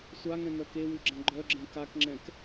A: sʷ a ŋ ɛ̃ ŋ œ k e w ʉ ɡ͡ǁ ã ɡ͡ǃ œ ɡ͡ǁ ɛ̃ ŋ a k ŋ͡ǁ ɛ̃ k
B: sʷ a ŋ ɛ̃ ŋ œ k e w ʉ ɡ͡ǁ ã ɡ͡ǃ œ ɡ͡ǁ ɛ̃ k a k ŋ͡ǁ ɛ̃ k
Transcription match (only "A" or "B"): B